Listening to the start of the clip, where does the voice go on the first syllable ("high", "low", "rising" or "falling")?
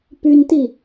high